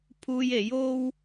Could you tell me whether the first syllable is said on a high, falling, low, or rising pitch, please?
high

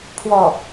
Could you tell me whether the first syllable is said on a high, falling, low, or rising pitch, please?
falling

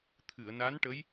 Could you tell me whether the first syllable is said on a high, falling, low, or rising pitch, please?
low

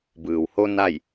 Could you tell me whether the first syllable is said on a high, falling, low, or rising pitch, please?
low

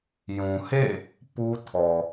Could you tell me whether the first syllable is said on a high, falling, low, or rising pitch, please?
low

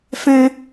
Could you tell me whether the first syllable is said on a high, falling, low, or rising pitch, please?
high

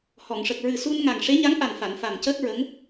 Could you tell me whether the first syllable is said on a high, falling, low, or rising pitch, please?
low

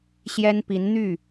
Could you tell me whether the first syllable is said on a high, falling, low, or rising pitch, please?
high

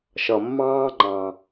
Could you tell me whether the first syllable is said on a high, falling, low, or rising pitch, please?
low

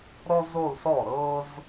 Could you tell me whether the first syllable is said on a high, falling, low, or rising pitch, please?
high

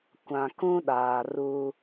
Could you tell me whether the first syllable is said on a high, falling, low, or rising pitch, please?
low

